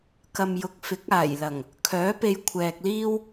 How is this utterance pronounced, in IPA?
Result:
k ɐ˨ m j ʊ˨ k̚ f ɪ˨˥ k̚ aː˨˩ j l ɐ˨˩ ŋ | kʰ œː˨˥ p e˧ j kʷʰ ɛː˨ k̚ l iː˥ w

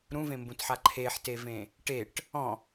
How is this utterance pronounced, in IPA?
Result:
ɾ ũ v ẽ m b ũ t ħ a ǃʰ e ħ t e v ẽ | ʈ e ʈ | ɔ̃

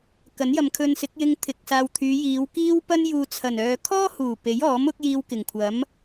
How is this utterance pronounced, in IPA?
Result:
k ɐ˨˥ n j ɐ˨ m kʰ ɵ˧ n s ɪ˨˥ k̚ j ɪ˧ ŋ t̪ʰ ɪ˨˥ k̚ s aː˨ w t̪ʰ yː˨˧ j iː˨˧ w k iː˥ w p ɐ˥ n j uː˨ t͡sʰ ɐ˨˩ n œː˨ kʰ ɔː˥ h uː˨˩ p e˨˥ j ɔː˨˥ m ʊ˨˥ k̚ j iː˧ w k ɪ˨˩ ŋ kʷʰ ɐ˨˥ m

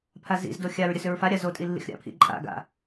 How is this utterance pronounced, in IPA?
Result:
pʰ a z ḭ z d o xʲ a ɹ ɾʲ ə s ʏ ɹ f a ɾʲ a z o tʼ i lː ḭ x ɾʲ a̰ pʰ ḭ ǃʼ a̰ ɡ a̰

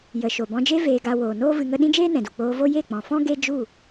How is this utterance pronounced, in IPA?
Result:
j ə˨ ʃ o˨ b ɔ̃˧ d͡ʒ e˦ v eː˧ ɡ a˧ w oː˨ n oː˦ v ɨ˧ ŋ ə˦ ɗ ĩ˦ d͡ʒ eː˦ n ɛ̃˨ d u˨ k͡p oː˧ v o˦ j e˦˨ k͡p ɔ̃˨ f ɔ̃˦ ɡ e˦ d͡ʒ u˦˨

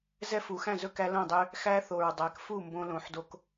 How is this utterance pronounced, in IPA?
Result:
z ɛ˦˥ f u˩˧ x æ̃˥˩ z ɵ˥˩ k æ˦˥ l õ˥˩ dˤ ø˦˥ | x æ˦˥ θ o˨˩ ɹ dˤ æ˩˧ k f u˥˩ m b õ˦˥ l õ˨˩ ħ d o˦˥ k

